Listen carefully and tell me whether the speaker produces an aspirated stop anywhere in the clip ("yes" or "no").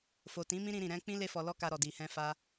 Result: no